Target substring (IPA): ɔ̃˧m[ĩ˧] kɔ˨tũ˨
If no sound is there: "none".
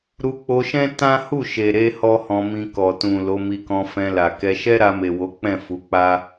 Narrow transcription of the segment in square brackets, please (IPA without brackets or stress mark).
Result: ĩ˧